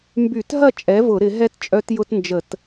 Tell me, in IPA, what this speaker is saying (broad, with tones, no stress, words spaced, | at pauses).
mby˧˩˧tɦɐ˥˨ t͡ʃʼɛ˩˥vʊ˧˩˧ ɾɪ˧˩˧ɦɛ˦˥t t͡ʃʼœ˦˥tjʊ˦˥tnd͡ʒə˧˩˧t